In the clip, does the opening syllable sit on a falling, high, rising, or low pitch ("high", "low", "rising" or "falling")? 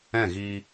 falling